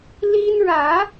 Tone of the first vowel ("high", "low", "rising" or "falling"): high